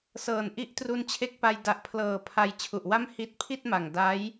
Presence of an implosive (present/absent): absent